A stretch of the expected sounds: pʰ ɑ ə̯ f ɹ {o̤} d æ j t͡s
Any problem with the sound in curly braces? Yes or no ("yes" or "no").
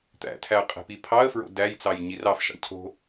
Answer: yes